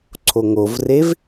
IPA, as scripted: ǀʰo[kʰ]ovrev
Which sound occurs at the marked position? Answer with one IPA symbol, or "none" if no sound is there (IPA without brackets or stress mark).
ŋ